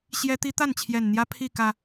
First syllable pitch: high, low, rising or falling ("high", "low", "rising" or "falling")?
high